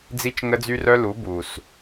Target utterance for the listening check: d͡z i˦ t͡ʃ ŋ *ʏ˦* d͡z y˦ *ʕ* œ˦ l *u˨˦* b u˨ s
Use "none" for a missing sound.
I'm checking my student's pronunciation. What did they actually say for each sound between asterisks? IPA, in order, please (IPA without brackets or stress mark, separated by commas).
ə˦, r, u˨˦